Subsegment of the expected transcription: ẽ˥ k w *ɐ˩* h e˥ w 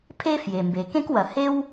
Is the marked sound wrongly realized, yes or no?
no